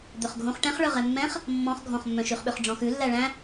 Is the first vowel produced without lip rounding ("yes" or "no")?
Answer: no